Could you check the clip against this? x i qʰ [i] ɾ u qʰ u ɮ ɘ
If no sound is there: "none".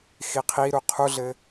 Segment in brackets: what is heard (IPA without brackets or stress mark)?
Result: i